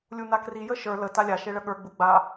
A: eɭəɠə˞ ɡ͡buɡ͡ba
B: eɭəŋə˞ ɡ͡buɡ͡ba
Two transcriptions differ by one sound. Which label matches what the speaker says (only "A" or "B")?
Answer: A